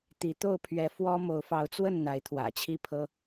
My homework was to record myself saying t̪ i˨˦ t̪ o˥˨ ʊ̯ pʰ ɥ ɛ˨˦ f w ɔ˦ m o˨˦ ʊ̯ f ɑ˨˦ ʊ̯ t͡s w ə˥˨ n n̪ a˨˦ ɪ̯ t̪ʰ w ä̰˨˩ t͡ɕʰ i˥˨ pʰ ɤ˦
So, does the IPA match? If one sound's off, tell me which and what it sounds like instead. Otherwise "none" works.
none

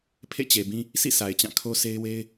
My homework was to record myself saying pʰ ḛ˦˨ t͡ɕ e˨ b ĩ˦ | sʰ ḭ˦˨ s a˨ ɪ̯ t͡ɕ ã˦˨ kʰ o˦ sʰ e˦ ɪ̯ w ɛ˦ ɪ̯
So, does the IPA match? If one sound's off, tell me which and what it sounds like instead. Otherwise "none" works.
ɛ˦ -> e˦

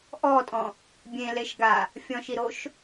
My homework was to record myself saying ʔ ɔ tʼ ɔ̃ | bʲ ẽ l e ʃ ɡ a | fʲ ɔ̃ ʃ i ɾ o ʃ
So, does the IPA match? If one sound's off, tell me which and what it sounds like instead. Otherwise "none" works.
none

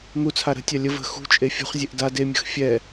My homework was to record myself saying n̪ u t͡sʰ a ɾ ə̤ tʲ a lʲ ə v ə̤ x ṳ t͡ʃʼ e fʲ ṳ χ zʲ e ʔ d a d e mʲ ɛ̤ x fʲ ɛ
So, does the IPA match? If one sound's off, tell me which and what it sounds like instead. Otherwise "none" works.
ɛ̤ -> ə̤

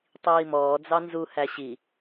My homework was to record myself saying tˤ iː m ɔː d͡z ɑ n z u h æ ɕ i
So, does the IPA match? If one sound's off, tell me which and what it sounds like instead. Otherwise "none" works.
none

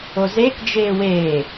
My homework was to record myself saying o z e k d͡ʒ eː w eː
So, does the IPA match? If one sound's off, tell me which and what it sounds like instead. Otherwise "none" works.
none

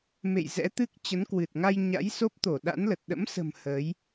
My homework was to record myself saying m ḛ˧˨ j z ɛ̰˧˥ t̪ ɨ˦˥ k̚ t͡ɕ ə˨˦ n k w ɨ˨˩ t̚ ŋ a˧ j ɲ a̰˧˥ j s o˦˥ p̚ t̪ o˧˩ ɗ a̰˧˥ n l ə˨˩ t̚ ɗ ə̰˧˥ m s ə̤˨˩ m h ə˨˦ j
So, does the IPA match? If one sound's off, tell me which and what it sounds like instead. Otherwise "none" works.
none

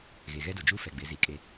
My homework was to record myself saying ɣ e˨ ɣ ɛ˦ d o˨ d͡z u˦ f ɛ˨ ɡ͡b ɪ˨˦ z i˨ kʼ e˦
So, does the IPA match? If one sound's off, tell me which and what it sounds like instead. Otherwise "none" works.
d͡z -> d͡ʒ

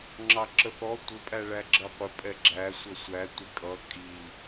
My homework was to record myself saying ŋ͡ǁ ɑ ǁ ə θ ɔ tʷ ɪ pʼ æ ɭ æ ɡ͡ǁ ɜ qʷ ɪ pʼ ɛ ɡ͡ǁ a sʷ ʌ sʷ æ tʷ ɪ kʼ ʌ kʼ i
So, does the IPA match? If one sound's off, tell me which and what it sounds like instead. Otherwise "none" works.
a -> æ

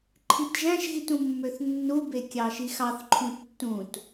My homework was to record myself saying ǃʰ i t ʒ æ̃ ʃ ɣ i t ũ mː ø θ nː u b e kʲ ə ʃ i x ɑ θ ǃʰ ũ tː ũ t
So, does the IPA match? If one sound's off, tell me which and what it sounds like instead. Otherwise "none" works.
ə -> ɑ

